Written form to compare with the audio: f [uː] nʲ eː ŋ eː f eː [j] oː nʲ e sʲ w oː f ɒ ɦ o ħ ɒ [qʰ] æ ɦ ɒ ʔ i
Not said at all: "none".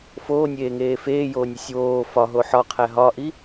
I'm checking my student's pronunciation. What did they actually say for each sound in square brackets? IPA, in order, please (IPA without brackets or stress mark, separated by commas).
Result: oː, j, qʰ